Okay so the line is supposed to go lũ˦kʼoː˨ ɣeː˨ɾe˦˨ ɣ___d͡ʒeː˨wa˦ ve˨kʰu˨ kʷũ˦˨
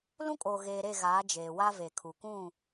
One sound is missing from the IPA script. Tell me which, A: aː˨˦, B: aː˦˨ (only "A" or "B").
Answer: A